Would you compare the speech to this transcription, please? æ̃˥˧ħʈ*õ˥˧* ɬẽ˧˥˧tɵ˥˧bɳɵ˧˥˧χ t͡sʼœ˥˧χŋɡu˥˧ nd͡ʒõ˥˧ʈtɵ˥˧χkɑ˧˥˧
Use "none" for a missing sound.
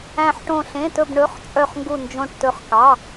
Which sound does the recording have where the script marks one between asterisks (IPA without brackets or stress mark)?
õ˥˧